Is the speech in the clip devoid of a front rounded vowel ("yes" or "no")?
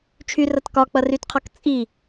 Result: no